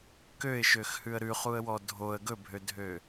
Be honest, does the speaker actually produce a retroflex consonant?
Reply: no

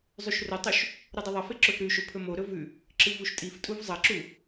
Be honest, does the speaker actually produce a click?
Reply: yes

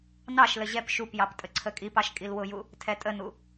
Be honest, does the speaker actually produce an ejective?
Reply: yes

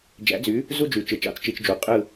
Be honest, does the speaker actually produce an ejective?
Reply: yes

